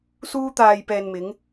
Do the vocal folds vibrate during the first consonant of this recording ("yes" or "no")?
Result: no